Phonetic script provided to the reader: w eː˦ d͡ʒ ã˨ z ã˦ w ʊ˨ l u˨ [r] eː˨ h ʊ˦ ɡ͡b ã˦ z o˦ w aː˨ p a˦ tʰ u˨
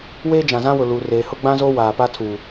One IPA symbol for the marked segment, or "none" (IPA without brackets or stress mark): r